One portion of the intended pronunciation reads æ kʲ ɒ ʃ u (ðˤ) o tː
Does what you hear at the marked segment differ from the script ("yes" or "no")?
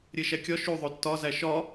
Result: no